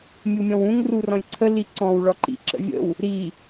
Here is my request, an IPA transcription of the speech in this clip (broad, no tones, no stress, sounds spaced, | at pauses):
mʲ u mʲ ɔ̃ w ũ ŋ r u r ɔ̃ lʲ ǀʰ ə l i ǀ ɔ̃ w ɭ ɔ ǃ ḭ ǁ ə̰ vʲ ə̰ w | ɾ i